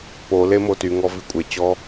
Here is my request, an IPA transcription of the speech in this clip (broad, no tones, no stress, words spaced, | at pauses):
pole motyŋɔ vikʷʼet͡ɕɔ